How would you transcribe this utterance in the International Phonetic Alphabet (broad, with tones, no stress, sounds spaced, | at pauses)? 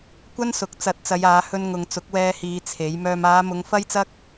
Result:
kʷ ɐ˥ n s ʊ˨˥ k̚ t͡s ɐ˨˥ t̚ t͡s ɐ˨˧ j aː˨˧ h ɵ˧ n ŋ ʊ˨ ŋ t͡s ʊ˨˥ k̚ w ɛː˧ h iː˨˧ t͡sʰ e˨˥ j m œː˨ m aː˨˧ m ʊ˨˧ ŋ f ɐ˥ j t͡s ɐ˥ k̚